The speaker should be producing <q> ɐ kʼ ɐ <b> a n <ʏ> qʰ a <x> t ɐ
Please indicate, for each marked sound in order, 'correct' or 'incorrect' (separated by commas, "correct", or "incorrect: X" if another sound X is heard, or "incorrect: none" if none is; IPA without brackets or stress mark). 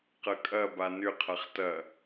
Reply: correct, correct, correct, incorrect: χ